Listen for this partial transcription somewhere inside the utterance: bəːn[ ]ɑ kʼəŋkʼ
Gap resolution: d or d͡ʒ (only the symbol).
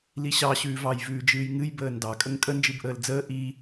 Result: d